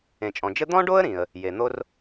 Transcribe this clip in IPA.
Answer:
ẽ˩ t͡ʃʼ ɔ̃˩ d͡ʒ ɘ˥ d̪ ɔ̃˥ ɖ o˥ ə̯ ɾ ĩ˩ ə̯ | j e˩ n̪ o˥ r

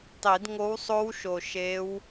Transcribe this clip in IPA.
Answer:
tˤ i˨˩˦ d ŋ o˧˥ w sˤ o˧˥ w ʃ o˨˩ ʃ e˧˥ w

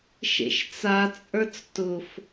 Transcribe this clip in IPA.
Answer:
ʃ ḛ ʃ t͡s a t͡sʼ ə˞ t͡s t ʊ f

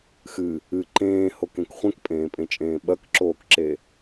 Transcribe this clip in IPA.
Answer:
x ɨ | ɨ ǃ ẽː h o k ẽ k χʷ ẽ k pʼ ẽː pʼ ẽ t͡ʃʼ ẽː ɓ ɐ k ǁ oː k ǁ e

